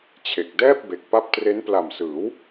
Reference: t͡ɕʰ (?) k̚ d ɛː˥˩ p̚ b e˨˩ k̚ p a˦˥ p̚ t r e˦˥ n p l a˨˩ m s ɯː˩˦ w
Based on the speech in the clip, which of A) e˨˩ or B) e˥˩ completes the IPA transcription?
A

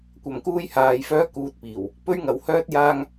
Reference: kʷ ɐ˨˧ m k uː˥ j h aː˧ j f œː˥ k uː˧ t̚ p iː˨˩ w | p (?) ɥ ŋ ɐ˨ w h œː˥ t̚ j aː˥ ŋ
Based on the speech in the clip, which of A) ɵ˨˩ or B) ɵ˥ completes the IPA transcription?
B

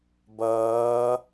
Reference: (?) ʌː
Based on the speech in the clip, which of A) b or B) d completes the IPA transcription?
A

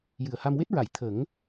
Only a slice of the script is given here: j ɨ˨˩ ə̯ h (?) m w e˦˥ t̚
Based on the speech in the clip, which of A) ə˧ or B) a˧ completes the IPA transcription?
B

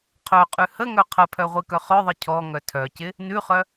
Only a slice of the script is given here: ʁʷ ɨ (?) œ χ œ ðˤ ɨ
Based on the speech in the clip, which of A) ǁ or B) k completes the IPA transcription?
B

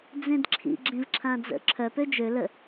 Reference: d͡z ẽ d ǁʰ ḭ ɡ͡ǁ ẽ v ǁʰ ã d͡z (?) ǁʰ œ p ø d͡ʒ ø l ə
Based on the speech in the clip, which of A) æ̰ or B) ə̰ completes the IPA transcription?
B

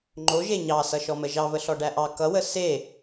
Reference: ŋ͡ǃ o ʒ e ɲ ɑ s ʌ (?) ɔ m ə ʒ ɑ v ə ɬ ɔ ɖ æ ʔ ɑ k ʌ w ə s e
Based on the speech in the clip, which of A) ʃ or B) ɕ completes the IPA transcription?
A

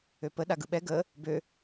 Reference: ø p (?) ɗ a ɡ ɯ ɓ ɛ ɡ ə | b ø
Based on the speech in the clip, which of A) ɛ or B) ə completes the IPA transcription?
B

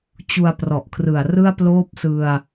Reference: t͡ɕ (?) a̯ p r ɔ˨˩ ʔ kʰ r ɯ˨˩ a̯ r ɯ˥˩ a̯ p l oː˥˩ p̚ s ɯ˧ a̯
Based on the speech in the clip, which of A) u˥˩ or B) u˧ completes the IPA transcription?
B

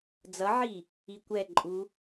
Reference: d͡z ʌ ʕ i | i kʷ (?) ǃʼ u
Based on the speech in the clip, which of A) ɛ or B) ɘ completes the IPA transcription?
A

